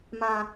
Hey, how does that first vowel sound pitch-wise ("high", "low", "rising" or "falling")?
low